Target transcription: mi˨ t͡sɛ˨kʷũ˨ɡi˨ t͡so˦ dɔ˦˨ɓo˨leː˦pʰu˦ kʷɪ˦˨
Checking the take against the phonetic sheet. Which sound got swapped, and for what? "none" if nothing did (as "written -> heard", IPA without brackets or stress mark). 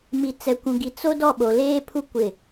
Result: none